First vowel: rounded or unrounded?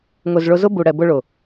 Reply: rounded